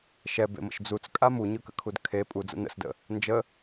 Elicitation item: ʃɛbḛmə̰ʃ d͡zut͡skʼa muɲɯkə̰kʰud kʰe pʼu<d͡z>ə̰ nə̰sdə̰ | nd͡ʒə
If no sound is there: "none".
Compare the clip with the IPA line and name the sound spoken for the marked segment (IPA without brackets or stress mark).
d͡z